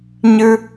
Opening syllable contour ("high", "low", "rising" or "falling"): high